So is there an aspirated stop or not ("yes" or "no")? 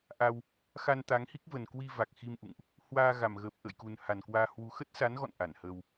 no